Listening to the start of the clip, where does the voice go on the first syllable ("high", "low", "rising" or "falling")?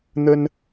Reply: high